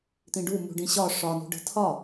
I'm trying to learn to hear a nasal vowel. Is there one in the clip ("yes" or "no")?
yes